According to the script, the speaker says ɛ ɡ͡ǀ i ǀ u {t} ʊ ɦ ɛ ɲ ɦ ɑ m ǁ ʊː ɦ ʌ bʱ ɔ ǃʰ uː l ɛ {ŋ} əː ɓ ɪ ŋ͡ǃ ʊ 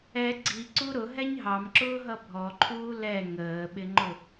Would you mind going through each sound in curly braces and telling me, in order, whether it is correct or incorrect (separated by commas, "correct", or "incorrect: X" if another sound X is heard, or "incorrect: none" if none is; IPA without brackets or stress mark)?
incorrect: ɾ, correct